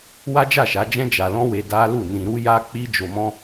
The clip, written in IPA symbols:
w a˦ d͡ʒ a˦˨ ʃ a˨˦ d͡ʒ ɛ̃˦ d͡ʒ a˧ l ɔ̃˦ w e˧ d a˦ l u˦˨ n ĩ˧ ɾ u˦ j a˦ k͡p i˦ d͡ʒ o˧ m ɔ̃˦

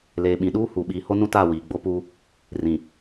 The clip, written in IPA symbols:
l eː˨ ɓ ĩ˨ ɗ uː˦ h u˨ ɓ iː˨ h o˦ n ũ˦ t aː˦˨ w iː˨ ɡ͡b o˦ p uː˦ | r ĩ˨

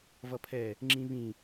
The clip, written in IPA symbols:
v ʌ pʰ ɛ | ŋ͡ǁ ĩ β ĩ

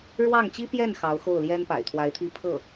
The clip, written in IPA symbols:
ɻ w ɑ˥˩ ŋ t͡ɕ i˥ p j ɛ˥˩ n x ɑ˧˥ ʊ̯ x o˥˩ ʊ̯ l j ɛ˥ n p a̰˨˩ ɪ̯ t̪ʰ w a˧˥ ɪ̯ t̪ʰ i˥ pʰ ɤ˥˩

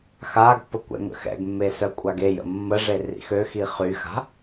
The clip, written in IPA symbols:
x a ɡ pː ə kʷ ɛ̰ ŋ ə̰ x ɛ̰ ɡ mː e s œ kʷʼ a ɡ e j ə̰ mː ə ʐ e r ḭ x ø x i χ y x a̤

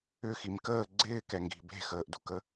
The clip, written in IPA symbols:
ʏ x i m k əː ɡ͡ǀ ɪː k ɛ ŋ ɡ i̤ b e̤ x əː ʔ d ṳ k ə

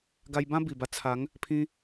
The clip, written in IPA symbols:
ɡ a˧ j b ã˦ b i˨˩ b a˧ t͡sʰ a˨˦ ŋ | pʰ ĩ˧

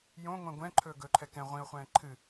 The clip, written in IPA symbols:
j õ ŋʷ ɛ̃ ɡʷ ɛ̃ ǃʰ ɵː ɡ ɵ ǃʰ ɛ k ɛ̃ ʁʷ ĩ ʊ̯ χʷ ɛ̃ː ǃʰ ɨ

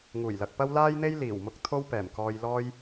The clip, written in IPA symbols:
ŋ uː˨˩ j l ɐ˨ k̚ p ɐ˥ w l aː˥ j n̪ e˥ j l iː˨˩ w m ʊ˧ k̚ t̪ʰ o˥ w p ɛː˨˩ m k ɔː˧ j l ɔː˥ j

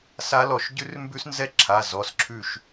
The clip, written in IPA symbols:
s a˦˥ l ɔ˧˩ ʃ ɟ ʉ˦˥ r m b ʉ˦˥ s n z ɛ˦˥ ǁʰ a˩˧˩ z ɔ˩˧˩ s ǁʰ ʉ˧˩ ʃ

